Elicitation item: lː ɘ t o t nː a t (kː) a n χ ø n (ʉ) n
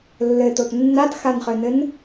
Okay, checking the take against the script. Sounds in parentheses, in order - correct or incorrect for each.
incorrect, incorrect

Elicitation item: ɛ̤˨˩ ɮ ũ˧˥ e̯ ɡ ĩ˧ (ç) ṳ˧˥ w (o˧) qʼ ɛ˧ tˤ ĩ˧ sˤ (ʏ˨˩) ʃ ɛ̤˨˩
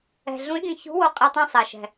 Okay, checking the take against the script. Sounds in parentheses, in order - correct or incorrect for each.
correct, correct, incorrect

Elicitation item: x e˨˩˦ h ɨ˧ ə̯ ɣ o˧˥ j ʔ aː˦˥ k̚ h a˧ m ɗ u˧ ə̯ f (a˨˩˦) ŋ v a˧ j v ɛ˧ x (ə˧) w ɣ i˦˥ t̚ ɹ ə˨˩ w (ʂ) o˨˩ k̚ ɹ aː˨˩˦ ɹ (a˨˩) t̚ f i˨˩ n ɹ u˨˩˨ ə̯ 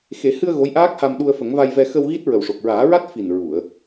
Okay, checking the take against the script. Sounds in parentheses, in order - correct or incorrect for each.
incorrect, correct, correct, incorrect

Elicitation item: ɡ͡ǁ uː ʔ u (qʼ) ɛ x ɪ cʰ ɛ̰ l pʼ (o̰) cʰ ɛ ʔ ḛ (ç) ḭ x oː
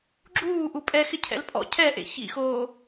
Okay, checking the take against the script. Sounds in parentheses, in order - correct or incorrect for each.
incorrect, incorrect, correct

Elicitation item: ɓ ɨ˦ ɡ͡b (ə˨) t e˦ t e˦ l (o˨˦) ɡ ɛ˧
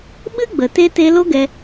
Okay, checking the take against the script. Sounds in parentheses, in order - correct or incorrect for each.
correct, incorrect

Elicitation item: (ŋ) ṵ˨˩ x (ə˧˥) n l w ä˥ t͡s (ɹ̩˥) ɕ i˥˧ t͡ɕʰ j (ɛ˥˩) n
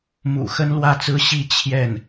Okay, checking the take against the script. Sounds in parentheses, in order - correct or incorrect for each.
incorrect, incorrect, correct, correct

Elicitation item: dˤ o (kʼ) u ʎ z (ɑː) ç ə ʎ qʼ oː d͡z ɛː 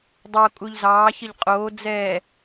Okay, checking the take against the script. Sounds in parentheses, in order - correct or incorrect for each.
correct, correct

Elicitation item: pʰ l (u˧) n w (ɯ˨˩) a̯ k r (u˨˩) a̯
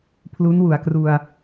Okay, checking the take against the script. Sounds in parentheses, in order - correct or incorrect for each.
incorrect, incorrect, incorrect

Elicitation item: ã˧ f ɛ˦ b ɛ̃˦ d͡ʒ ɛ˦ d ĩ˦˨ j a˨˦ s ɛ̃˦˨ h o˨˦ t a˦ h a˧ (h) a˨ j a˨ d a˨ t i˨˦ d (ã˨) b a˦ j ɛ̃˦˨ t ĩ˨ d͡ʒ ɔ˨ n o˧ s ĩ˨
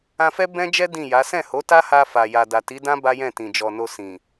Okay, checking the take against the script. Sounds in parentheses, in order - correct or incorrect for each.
incorrect, incorrect

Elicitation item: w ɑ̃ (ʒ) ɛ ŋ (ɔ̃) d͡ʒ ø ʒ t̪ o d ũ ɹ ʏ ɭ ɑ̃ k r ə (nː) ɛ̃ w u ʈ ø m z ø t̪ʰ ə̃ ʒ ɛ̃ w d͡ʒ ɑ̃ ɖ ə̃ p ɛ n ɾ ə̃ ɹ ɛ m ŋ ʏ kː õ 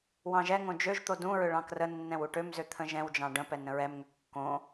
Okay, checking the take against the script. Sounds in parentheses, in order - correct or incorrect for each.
correct, incorrect, correct

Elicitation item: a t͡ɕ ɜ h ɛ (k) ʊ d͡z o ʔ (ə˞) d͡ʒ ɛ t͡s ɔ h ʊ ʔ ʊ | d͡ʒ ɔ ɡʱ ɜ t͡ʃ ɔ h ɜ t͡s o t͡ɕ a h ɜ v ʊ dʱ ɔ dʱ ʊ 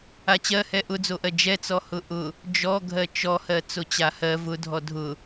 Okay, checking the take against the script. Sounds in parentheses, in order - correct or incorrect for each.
incorrect, incorrect

